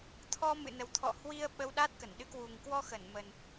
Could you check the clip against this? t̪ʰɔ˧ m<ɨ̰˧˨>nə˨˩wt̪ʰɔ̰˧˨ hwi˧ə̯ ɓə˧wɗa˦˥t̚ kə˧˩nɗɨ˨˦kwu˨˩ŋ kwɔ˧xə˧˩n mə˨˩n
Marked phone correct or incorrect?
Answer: correct